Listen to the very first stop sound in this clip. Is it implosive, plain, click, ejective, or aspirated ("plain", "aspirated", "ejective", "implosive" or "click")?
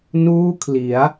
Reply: aspirated